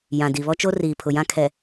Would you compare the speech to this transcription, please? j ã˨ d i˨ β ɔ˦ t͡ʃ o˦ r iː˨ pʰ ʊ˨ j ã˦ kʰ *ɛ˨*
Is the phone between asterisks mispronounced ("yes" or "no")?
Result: no